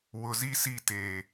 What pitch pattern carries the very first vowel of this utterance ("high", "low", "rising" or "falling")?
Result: low